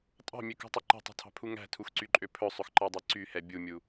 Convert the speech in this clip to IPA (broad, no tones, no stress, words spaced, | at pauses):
tʼɑ̤mʲøkṳtˤɵ ǃɛ̤tˤṳtʰɑ̤pʰu ŋæ̤tʰuxǀyǃʼø pʰɵsˤɵxǃɑdˤɛ ǀyhɛ bʲumʲu